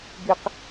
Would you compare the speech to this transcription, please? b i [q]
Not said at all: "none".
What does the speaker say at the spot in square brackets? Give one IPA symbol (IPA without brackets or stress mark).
q